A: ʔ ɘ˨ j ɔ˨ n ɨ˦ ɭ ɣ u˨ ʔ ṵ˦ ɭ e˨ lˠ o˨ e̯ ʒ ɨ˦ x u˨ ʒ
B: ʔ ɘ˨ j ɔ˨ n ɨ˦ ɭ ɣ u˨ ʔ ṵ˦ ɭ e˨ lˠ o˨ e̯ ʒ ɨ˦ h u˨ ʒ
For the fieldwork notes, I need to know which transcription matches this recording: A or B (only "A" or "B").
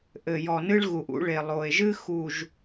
A